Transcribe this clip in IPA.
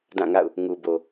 d ã˦˨ ŋ a̰˦˨ ʊ̯ | ŋ u˨ b o˨

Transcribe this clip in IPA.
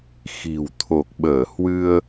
x i̤˨˩ w t̪ʰ o˨˩ k̚ ɓ əː˧˩ h w ɨ˧ ə̯

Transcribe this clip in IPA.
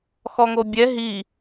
x ɔ ŋ o bʲ ɛ ɦ i

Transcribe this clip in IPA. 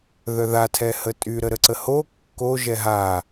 ð œ ð a tʰ ɛ h ə tʼ y ɾ ə ɾ ə ǀ ə h o kː o ʒ ɛ ɦ a

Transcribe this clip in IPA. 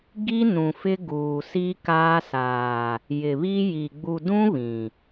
ɡ i˦ n ũ˨ f ɪ˦ ɡ uː˨ s i˦ k aː˦ s aː˨ | j ɪ˨ β i˦ j i˨ ɡ͡b u˨ d ũ˦ β ĩ˨

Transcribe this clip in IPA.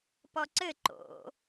p ɔ ǀ ɘ ǃ o̰

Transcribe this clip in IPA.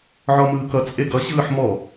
ʕ ɔ m ɯː k ʌ t͡sʼ e ɡ ʌ ɕ ɯː ħ m ɔ

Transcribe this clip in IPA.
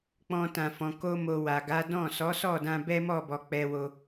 k͡p ɔ̃˧ t ã˨ f ɔ̃˨ k o˧ m o˨ w a˨ ɡ a˨˦ d ɔ̃˦˨ s ɔ˨˦ s ɔ˦˨ d ã˧ b ɛ˦ m ɔ˦˨ b ɔ˨ k͡p ɛ˧ w o˧

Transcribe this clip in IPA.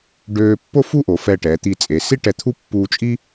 ɖ øː˧ pː o˥˧ f u˥˧ ʔ o˩˧ f ɛ˧˩ ʈ ɛ˩˧ t̪ i˧˩ t͡sʼ e˩˧ s i˥ ʈ ɛ˧˩ t̪ʰ u˥ pː uː˧ t͡ʃʼ i˥

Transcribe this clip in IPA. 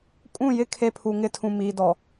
kʼ ũ˦˨ j ɪ˦ kʰ e˦ pʰ u˨ ŋ ɪ˦ tʰ ũ˨ m iː˨ d ɔ˨

